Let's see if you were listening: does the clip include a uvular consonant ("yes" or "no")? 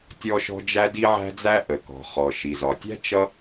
yes